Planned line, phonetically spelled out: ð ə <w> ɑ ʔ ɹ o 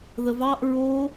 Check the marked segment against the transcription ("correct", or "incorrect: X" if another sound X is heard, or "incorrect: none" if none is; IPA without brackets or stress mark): incorrect: v